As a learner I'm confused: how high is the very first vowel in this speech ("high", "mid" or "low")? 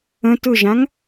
mid